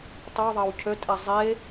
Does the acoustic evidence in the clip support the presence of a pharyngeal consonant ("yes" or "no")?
no